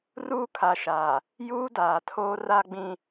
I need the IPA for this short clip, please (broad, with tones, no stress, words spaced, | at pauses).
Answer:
ruː˦kʰa˨ʃaː˨ | juː˦daː˨tʰoː˦ ra˦ɡ͡bĩ˦